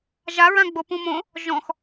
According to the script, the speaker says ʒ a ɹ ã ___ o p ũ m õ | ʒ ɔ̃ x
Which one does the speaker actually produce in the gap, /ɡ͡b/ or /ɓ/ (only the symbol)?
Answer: ɡ͡b